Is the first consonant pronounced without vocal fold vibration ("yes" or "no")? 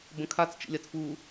no